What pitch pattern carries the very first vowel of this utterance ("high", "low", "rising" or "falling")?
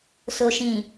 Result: low